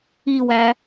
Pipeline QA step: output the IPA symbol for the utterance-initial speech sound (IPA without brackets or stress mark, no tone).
i